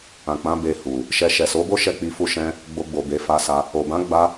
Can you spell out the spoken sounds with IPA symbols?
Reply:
ã˨ k͡p ã˨˦ b e˧ h u˨ | ʃ ɛ˧ ʃ ɛ˨ s o˨˦ b o˦ ʃ ɛ˦˨ k͡p i˧ f u˧ ʃ ɛ̃˧ | ɡ͡b o˧ ɡ͡b o˨ b e˨˦ f a˧ s a˧ | o˨ b ã˨˦ ɡ͡b a˧

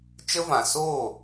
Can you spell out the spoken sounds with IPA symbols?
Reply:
t͡ʃ ə˦ v ã˨ s oː˦˨

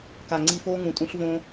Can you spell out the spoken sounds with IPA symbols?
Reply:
k a˨ ŋ͡ǀ i˧ f oː˦ ŋ ũ˨ tʼ ũ˧ ɬ v õ˦

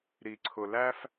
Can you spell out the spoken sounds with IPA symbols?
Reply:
ɾ i˨ ǀʰ ʊ˨ l æ˦ f

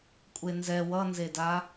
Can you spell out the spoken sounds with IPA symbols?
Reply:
kʷʼ e n z ɛ w ʌ n z e d a

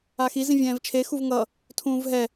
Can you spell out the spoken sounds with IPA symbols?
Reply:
a x i z ĩ vʲ ɛ̃ː v t͡ʃʰ e x u v ŋ ʌ | tʰ ũː v ɦ ɛ

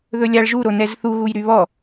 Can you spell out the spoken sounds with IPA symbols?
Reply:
ð ɵ lʲ a ɭ ʒ u ɾ o n ɛ z θ u ɣ u j ɾ y β ɔ

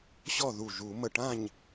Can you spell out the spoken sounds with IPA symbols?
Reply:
ɕ ɔ˥˨ ð u˧˩ ʒ u˨˩˦ m ə˧˩ ʈ ã˥˨ ɲ

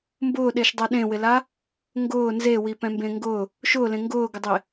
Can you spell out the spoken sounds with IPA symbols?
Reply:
m b ʊː ɗ e ʃ dˤ ɛ ɗ ẽ w ɪ l a | ŋ ɡ ʊː n z e w i p ɛ̃ m b ẽ ŋ ɡ ʊ | ʃ ʊː l ẽ ŋ ɡ ʊː ɡ ɪ dˤ e

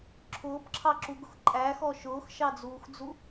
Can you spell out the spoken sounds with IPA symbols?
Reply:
ǁʰ ʊː p ǁʰ ɑ ǁ u ɡ ʊ x ǃʼ æ x ɔ ʃ ʊː x ʃ ɑ d͡z uː x d͡z u

